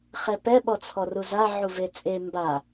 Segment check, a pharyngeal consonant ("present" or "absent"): present